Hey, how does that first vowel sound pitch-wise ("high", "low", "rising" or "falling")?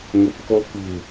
low